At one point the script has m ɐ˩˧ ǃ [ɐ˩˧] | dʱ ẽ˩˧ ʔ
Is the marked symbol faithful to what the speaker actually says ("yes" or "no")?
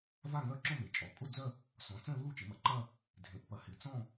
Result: no